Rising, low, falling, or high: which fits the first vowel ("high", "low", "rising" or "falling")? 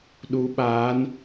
rising